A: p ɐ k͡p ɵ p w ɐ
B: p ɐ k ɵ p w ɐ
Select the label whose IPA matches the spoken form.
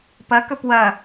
B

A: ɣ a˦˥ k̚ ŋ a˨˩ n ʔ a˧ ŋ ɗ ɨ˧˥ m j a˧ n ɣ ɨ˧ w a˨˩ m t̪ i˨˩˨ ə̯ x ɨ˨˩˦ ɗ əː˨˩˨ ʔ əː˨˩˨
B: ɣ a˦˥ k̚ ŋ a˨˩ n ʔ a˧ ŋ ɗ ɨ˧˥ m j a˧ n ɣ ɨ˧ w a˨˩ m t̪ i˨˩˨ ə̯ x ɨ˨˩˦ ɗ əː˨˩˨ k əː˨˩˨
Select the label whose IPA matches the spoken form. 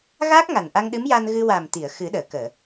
B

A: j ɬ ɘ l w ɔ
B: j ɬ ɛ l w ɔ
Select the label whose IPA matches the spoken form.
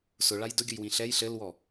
A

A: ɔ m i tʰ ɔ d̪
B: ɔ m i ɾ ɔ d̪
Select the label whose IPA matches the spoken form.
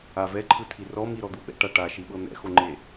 B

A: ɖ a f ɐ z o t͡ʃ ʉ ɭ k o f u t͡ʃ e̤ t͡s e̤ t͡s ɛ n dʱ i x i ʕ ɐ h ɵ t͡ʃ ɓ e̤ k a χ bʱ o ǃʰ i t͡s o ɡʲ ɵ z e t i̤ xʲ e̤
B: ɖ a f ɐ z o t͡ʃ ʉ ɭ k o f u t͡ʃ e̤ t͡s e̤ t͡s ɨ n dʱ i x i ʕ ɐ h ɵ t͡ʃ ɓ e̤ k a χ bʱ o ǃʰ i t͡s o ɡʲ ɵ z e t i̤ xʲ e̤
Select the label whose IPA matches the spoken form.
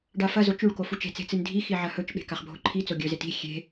B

